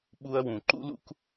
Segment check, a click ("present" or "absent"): present